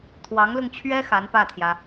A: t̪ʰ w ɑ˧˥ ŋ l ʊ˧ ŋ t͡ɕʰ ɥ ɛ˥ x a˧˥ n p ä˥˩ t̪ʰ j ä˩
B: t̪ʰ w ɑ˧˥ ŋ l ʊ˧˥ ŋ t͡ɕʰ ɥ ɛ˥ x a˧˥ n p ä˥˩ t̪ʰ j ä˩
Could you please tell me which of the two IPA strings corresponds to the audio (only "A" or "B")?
A